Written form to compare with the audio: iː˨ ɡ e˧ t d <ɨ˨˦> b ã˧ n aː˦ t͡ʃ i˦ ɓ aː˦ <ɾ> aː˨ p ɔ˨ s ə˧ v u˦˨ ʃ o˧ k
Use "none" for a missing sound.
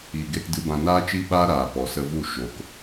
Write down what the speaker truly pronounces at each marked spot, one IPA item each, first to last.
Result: ɨ˨˦, ɾ

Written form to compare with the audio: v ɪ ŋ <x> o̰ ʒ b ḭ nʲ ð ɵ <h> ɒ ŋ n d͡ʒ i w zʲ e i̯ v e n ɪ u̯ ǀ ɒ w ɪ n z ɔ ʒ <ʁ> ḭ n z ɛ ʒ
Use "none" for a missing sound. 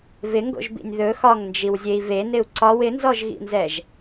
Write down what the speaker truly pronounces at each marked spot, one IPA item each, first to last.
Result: ɡ, x, ɣ

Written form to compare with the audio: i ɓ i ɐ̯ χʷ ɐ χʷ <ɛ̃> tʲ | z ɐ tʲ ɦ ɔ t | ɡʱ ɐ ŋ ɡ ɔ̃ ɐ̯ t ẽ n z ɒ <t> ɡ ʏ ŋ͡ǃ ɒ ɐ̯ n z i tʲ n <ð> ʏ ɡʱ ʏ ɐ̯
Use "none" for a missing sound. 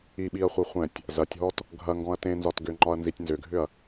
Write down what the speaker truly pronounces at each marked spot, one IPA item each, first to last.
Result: ɛ̃, t, z

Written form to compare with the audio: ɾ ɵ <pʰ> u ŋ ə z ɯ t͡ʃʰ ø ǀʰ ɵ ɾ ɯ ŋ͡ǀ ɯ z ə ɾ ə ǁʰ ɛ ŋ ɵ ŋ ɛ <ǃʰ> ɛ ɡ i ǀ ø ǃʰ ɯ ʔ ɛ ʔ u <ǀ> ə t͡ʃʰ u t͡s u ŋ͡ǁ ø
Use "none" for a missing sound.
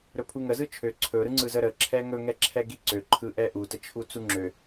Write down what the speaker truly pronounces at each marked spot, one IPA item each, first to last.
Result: pʰ, ǁʰ, t

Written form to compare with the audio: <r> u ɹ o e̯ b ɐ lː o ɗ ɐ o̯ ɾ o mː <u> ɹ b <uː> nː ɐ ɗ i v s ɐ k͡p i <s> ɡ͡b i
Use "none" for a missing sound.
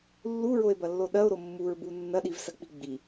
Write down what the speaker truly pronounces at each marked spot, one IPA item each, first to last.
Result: lː, u, u, none

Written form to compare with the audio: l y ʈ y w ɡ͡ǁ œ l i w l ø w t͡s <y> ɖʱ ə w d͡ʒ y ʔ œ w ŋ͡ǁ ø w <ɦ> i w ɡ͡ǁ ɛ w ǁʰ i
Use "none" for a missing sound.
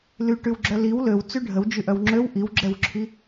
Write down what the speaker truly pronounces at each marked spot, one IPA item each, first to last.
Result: y, ʔ

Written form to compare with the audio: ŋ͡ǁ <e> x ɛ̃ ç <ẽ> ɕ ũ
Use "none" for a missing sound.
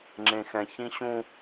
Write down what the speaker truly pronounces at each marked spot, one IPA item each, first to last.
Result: ẽ, ĩ

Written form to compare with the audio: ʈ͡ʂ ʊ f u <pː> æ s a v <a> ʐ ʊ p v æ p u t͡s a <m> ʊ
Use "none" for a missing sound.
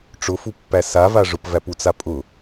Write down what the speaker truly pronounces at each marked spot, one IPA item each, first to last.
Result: pː, a, pʼ

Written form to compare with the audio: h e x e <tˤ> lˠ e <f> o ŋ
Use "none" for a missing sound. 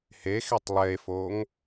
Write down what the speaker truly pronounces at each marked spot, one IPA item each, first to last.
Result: tˤ, f

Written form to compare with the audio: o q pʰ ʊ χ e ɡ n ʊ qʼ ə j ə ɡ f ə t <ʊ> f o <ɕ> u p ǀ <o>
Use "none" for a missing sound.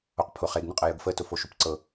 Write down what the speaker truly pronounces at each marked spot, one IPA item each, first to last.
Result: ʊ, ʃ, ɤ

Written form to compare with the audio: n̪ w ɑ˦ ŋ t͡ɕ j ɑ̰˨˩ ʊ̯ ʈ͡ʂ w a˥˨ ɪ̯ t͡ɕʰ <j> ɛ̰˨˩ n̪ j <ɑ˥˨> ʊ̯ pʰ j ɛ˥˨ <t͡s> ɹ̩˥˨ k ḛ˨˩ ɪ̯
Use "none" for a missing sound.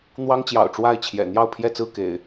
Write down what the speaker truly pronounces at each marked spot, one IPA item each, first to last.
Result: j, ɑ˥˨, t͡s

